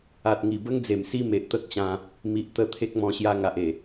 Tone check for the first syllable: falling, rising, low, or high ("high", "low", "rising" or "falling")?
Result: low